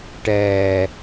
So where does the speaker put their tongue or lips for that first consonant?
retroflex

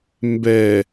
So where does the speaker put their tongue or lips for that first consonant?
lips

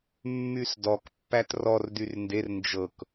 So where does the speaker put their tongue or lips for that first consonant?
lips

